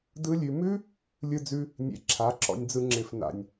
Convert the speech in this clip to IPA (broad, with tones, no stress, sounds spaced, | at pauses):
d ɯ˦ lʲ ʉ˧ m ʉ˦ | lʲ ɯ˧ d͡z ʉ˧ | nʲ ḛ˧ ǁʰ a˨˦ ǁ ɔ̰˧ nʲ d͡z ɯ˧ ŋ͡ǁ ɪ˨ f n a̰˨ nʲ